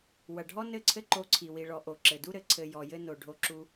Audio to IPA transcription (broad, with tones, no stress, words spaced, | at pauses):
wɐ˨ɖʱɔ˦nɘ˦˨ǀʰɘ˦ ǃo˧ǀʰi˨ wi˨ɭɔ˨ʔo˨ ǁɘ˨du˦ɾɘ˨ ǀʰɘ˨ jɔ˨jɘ˧no˨ɖʱo˧ ǁu˦